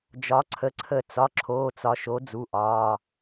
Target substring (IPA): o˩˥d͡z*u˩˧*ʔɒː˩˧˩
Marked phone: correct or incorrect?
incorrect